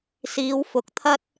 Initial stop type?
plain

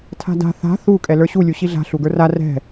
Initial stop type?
aspirated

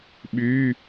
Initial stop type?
implosive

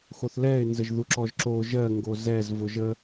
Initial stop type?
click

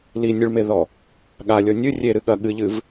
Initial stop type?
implosive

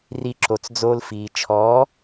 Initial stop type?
click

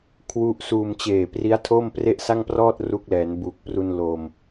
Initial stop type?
aspirated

